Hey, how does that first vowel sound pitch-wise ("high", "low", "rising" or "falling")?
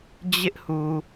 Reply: high